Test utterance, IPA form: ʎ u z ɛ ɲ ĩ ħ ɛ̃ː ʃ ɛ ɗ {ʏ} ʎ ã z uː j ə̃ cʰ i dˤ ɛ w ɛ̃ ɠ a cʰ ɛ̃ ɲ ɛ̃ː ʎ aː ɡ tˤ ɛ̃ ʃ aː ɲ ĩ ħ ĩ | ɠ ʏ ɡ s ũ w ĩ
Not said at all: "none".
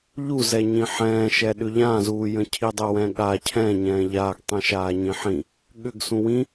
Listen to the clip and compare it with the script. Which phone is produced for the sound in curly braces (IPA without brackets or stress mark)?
ʏ